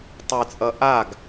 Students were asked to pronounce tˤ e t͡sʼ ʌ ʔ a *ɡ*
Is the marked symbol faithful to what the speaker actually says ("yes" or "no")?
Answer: yes